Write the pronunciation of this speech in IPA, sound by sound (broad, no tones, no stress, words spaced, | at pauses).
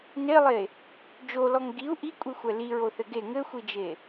nelˠe | d͡ʒolɔŋ ɡiu̯ ʔikʷʼixʷɛ liɹoθɘ ɡe ŋɘxʷid͡ʒe